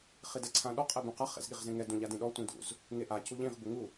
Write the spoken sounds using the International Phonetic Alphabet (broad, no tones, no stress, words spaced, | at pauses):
χidɛǀʰãɗɔ qʼɛbũqa χḛzɠiʁzẽŋɛ dũʎadĩɗɔ tʷĩdṵz | ŋeʔa cuʎĩʁ buŋu